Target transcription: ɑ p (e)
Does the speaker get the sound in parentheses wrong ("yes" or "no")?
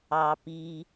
yes